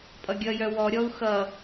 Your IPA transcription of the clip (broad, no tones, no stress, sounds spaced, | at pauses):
pʼ ʌ ɡʲ ʌ j œ w ɔ ɾʲ ɔ u̯ x ʌ